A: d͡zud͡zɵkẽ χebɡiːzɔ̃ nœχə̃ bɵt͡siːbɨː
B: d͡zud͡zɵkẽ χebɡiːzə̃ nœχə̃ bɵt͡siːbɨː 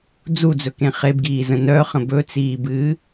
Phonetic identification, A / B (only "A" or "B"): B